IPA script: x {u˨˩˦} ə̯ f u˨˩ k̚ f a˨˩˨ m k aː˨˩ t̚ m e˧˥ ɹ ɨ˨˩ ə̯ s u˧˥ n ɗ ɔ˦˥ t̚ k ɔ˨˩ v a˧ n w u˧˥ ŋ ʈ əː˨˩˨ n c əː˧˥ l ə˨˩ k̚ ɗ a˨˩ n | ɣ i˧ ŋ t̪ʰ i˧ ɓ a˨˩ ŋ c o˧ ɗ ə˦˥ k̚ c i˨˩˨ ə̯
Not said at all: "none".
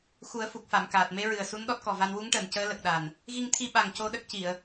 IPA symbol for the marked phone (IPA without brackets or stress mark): u˨˩˦